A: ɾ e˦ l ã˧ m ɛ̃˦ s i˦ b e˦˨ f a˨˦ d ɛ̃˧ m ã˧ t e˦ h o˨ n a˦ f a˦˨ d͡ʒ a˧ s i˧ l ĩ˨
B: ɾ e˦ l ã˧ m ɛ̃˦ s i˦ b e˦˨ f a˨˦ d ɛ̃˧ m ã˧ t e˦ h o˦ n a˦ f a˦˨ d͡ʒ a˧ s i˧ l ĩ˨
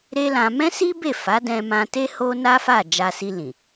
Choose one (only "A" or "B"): B